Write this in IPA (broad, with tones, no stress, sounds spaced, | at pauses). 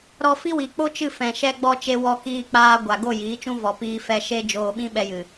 ɾ ɔ˧ f i˦ w i˨ k͡p o˦ t͡ʃ ɨ˦˨ f ɛ̃˨ ʃ ɛ˧ ɡ͡b ɔ˧ t͡ʃ e˧ w ɔ˧ k iː˧ k͡p aː˧ ɡʷ a˨ ɡ o˦˨ j iː˨˦ t͡ʃ ũ˦ v ɔ˨ p iː˧ f ɛ˧ ʃ e˦ d͡ʒ oː˧ ɓ ĩ˦ ɓ ɛ˧ j ɨ˨